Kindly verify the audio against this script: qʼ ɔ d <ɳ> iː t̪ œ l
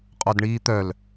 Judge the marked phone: correct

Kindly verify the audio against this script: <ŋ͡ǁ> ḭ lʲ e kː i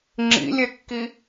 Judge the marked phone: correct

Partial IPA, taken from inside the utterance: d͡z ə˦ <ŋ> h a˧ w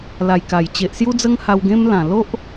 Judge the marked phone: correct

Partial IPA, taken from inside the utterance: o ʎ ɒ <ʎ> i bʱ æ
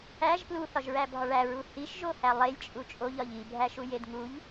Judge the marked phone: correct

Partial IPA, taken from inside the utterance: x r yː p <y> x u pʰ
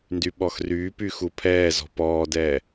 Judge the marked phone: correct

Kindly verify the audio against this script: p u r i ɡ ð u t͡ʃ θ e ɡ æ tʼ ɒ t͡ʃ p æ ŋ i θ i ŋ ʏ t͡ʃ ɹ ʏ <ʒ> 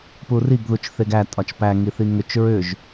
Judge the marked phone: correct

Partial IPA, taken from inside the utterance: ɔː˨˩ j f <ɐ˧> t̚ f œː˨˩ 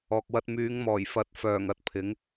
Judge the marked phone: incorrect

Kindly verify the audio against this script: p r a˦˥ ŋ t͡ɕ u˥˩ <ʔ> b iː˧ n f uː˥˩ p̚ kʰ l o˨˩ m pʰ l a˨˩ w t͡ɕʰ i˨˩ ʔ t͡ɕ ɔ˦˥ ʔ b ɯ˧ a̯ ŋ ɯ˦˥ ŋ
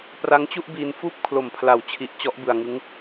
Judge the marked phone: correct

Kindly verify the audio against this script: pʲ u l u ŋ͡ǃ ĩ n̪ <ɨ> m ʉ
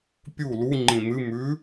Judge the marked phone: correct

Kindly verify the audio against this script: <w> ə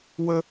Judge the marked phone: correct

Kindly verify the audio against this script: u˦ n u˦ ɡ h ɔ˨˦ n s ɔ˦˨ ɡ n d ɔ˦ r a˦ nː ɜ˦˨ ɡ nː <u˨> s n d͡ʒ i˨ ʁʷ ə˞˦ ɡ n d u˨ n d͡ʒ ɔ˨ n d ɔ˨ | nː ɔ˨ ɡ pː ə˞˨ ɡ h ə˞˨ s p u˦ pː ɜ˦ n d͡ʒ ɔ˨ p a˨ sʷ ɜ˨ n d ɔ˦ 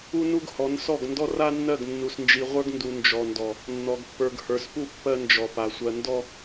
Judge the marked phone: correct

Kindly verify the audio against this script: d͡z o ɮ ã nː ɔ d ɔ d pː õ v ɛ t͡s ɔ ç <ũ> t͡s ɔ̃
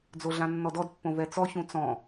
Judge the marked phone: correct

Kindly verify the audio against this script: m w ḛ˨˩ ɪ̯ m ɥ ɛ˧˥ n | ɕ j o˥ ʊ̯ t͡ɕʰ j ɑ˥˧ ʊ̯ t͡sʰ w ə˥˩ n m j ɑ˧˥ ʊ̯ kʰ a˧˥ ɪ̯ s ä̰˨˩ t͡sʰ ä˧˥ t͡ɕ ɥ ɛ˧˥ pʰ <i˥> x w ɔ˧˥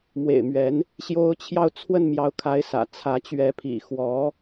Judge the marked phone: incorrect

